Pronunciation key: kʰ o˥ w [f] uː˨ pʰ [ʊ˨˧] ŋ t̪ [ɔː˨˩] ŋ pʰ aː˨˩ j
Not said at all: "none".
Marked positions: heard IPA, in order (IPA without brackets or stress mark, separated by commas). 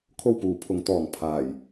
p, ʊ˨˧, ɔː˨˩